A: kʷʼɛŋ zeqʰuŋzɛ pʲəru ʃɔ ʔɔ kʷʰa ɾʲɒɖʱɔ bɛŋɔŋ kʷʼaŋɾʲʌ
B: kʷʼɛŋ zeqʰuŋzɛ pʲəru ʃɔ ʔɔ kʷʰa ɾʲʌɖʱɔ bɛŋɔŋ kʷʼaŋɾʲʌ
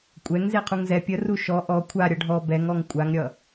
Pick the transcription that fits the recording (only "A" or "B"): B